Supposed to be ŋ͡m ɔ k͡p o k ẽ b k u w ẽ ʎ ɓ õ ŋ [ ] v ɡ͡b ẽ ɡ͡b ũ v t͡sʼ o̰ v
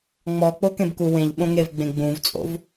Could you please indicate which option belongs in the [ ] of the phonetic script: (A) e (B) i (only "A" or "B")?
A